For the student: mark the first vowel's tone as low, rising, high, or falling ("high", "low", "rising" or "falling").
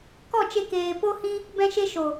falling